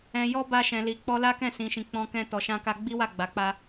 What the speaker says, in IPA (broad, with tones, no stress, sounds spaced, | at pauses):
ɛ̃˨ j ɔ˧ b a˧ ʃ ɛ̃˨ l i˨ k͡p ɔ˧ l a˦ k ɛ̃˦˨ s ĩ˨ ʃ ĩ˨ k͡p ɔ̃˧ k ɛ̃˧ t ɔ˨ ʃ ã˧ k a˧ ɡ͡b i˦ w a˦˨ ɡ͡b a˨˦ k͡p a˧